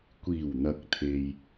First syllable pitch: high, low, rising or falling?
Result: low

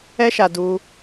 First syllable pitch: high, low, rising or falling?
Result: high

